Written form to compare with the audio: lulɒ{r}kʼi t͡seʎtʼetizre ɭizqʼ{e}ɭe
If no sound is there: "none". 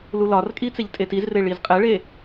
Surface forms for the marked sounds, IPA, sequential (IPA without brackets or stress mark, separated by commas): r, e